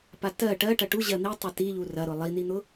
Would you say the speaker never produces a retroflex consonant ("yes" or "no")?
no